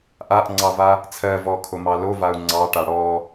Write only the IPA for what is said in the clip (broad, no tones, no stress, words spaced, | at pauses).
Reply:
ʔaʔŋ͡ǀɑva | t͡sʰɜ vɔkʰomɑ lovau̯ ŋ͡ǀɑʈa ɽɔ